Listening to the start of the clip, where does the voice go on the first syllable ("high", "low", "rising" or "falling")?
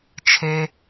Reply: high